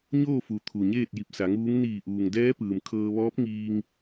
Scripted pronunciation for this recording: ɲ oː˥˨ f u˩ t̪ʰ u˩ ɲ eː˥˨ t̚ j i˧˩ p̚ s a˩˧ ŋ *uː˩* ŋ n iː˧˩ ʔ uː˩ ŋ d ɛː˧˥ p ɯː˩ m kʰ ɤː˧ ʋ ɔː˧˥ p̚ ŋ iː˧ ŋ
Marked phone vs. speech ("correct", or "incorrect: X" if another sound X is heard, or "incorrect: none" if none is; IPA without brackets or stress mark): incorrect: uː˧˥